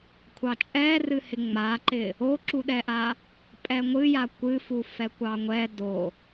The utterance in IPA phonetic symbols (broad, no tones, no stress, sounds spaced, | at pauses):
kʷʰ ɑ t͡ʃʼ ɛ r ɨ h ɪ ŋ͡m a ǃ ɪ | o ǁ u ɗ ɛ ʔ a | pʼ ɛ ŋʷ ɨ j a kʷ ɨ f u f ɛ kʷ ɑ ŋʷ ɛ d o